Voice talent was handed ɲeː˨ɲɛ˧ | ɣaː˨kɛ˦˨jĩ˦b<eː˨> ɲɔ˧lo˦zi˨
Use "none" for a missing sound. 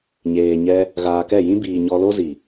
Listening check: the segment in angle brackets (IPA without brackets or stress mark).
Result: iː˨